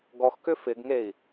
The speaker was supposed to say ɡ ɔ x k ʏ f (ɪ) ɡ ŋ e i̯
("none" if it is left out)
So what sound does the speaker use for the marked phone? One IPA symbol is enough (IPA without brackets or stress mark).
ɪ